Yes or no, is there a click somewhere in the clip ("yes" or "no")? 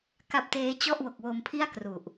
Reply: no